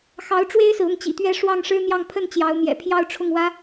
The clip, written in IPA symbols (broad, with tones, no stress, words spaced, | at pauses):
xɑ˧˥ʊ̯ʈ͡ʂwe˥ɪ̯sɹ̩˨ ʊ˥˩ŋt͡ɕḭ˨˩t̪ɥɛ˥˧ ʂwɑ˥˩ŋʂɻ̩˥n̪jɑ˥˧ŋ pʰə˥˩n t͡ɕjɑ˧˥ʊ̯n̪jɛ̰˨˩ pʰjɑ˥˧ʊ̯ʈ͡ʂʰʊ˥˩ŋwä˥